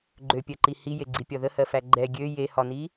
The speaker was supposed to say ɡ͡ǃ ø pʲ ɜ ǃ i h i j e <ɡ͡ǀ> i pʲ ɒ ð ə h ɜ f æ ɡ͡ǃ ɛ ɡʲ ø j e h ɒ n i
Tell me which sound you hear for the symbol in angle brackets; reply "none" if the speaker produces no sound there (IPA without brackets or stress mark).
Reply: ɡ͡ǀ